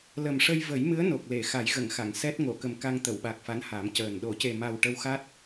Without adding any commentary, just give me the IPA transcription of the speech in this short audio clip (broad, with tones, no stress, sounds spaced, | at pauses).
l ə˨˩ m ʂ ə˧ j v ə˨˩˦ j m ɨ˧˥ ə̯ n o˨˩ k̚ l e˨˩˨ x a˨˩˦ j ɣ ə˨˩˨ ŋ x a˨˩˨ ŋ s ɛ˦˥ t̚ ŋ o˨˩˨ k ə˨˩ m k a˧ ŋ t̪ ə˨˩˨ w ɓ a˨˩ k̚ f a˧˥ n h a˨˩˦ m c əː˨˩ n ɗ o˨˩˨ c e˨˩ m a˨˩ w ʈ ə˧ w x a˦˥ t̚